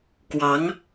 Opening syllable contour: rising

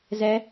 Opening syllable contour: rising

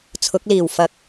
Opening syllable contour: rising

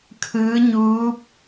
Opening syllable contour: rising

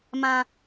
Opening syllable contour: high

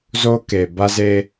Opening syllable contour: high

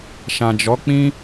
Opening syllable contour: low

